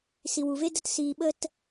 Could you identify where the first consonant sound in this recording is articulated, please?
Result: alveolar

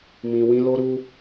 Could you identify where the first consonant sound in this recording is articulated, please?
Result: labial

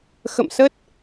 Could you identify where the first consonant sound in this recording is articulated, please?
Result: velar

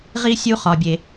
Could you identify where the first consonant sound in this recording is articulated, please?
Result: uvular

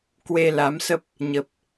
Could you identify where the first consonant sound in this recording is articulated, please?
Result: velar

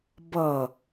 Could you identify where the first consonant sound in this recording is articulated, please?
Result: labial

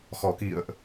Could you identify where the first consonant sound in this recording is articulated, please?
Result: velar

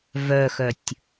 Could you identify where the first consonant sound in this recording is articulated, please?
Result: labial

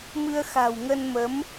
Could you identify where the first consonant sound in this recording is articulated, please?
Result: labial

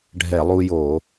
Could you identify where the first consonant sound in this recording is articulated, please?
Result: retroflex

